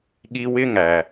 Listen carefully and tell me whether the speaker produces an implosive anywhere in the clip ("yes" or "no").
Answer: yes